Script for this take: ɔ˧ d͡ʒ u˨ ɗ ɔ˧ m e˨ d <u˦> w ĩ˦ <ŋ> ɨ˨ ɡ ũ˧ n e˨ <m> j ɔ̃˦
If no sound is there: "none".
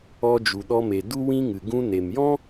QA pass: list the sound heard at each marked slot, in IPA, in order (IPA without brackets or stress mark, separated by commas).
u˦, ŋ, m